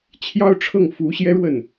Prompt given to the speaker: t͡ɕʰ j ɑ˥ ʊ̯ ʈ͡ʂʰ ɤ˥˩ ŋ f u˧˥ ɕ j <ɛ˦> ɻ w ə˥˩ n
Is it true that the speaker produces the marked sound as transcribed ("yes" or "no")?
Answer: no